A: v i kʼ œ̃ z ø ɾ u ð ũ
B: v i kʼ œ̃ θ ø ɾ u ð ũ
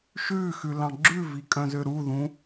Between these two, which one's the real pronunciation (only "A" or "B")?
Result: A